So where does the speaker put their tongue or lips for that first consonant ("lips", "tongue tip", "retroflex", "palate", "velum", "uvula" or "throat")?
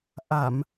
throat